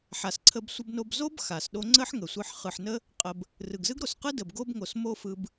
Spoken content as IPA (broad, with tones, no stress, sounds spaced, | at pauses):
ħ a˨ s ǀʰ ə˧ b sʷ ə˧ b n o˧ b z o˦ b x a˨ s ɗ o˦ ŋ͡ǀ ə˦ ħ ŋ ə˨ sʷ ɯ˧ ħ χ ɯ˨ ħ n ə˦ | qʼ ə˧ b | r ɯ˨ ɡ z ɯ˦ ɡ ɾ o˨ s q ɯ˦ d ə˨ b ɡ o˦ b ŋ o˨ s m o˦ f ɯ˧ b